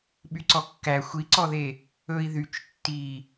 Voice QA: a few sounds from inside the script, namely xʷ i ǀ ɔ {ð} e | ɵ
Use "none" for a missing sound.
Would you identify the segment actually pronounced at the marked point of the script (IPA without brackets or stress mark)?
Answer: ð